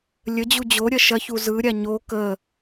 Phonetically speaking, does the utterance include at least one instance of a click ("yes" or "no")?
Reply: no